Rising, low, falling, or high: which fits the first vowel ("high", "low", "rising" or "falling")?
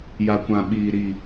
low